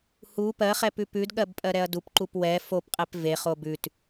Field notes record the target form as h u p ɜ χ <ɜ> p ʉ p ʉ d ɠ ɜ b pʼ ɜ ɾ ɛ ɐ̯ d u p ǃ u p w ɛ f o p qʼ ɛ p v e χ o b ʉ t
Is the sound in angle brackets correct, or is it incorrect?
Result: incorrect